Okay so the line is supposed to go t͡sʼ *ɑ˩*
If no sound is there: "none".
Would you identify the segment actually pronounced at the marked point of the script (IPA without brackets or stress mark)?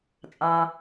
ɑ˩